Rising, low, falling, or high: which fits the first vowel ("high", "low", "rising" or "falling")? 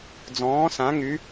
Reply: rising